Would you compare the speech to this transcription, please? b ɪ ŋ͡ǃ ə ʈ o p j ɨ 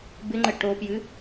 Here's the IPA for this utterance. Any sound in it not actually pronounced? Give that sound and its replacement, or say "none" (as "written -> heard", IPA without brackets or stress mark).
none